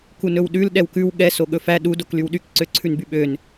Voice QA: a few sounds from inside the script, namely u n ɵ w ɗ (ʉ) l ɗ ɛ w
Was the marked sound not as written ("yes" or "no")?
no